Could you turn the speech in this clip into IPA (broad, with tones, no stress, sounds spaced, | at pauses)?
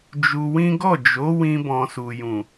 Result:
d͡ʒ u˧ w ĩ˦ ɡ ɔ˦˨ d͡ʒ o˨˦ w ĩ˧ b ɔ̃˨ s u˨ j ũ˨